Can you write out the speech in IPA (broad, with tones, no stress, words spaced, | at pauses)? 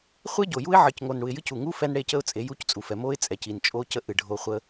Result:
χʷe˦ɟo˨ju˦ɪ̯ ʕɨ˨c ŋo˨nɽu˨ɪ̯jɨ˦c u˨ŋu˦ fɛ˦n ɽe˦˨cə˦ʊ̯t͡sʼe˨˦ ju˦ct͡sʼu˨fɛ˨ mo˦ɪ̯t͡sʼɛ˨ci˨n t͡ʃʼo˦cə˦ ʔɨ˦˨ɖʱo˦ χʷə˦